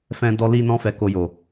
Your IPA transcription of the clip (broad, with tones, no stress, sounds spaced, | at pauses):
f ɛ̃˦ d ɔ˦ l i˦ n ɔ̃˦ f ɛ˧ k o˧ j o˨